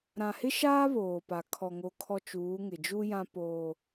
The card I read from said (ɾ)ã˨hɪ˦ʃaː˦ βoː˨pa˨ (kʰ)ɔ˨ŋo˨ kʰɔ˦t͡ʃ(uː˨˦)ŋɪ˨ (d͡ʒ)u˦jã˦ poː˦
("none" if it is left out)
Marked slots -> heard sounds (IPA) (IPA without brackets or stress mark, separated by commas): ɾ, kʰ, uː˨˦, d͡ʒ